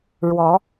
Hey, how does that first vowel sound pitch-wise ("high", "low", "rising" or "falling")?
rising